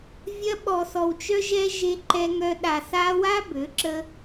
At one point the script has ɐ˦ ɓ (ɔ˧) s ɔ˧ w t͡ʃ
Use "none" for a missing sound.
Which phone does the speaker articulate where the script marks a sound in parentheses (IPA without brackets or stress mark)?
ɔ˧